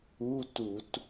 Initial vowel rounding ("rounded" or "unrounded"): rounded